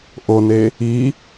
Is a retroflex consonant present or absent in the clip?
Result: absent